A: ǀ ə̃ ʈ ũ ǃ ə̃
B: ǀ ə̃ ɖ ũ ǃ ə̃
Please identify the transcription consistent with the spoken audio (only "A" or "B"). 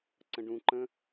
B